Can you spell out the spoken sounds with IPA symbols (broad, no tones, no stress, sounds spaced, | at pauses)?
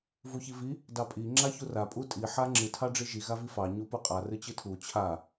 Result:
v u ç i v i | d ɑ pʼ i ŋ͡ǁ a ç u r a pʼ u tʼ i ħ a ŋ͡ǁ ɨ tʰ ɑ ɖ͡ʐ i ʒ i ɣ a v i f ɑ ɲ u p u qʼ a r ɨ t͡ɕ ɨ tʰ u t͡ɕʰ a